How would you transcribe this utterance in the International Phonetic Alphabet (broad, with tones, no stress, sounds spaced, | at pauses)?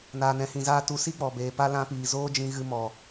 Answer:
n aː˧ n ɛ̃˧ h ĩ˧ z aː˦ t u˧ s i˦ k͡p ɔ˨ b eː˨ p a˦ l ã˧ p iː˨ z oː˦ d͡ʒ ĩ˧ ɣ ɨ˧ m ɔ˨